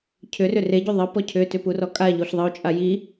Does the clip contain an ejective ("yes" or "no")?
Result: yes